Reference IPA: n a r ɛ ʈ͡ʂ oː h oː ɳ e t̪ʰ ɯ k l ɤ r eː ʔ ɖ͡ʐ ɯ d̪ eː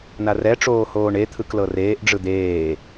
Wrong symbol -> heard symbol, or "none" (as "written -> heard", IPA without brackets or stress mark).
none